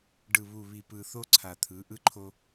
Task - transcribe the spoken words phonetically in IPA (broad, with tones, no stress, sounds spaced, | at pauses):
ɖ ɯ˨ β u˨ β i˨ p ɯ˨ θ o˦ ǀʰ a˨ t̪ʰ ɯ˨˦ ʔ ɯ˦ ǃʰ o˦